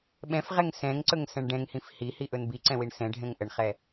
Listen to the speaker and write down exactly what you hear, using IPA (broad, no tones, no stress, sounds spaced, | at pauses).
ɓ ɛ̃ f ʁ ɛ ŋ s ɛ̃ ŋ ǀ ɵ ŋ s ɛ̃ ɳ ɖ ɛ̃ ŋ h ĩ f h i h i ʔ ɵ n b i ǀ ɛ̃ w i ɳ s ɛ̃ ɖʱ ɛ̃ ŋ ʔ ə ɳ χ ɛ